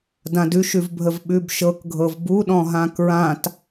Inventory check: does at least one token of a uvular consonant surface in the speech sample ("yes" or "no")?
no